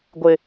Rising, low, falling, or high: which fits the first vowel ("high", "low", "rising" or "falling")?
low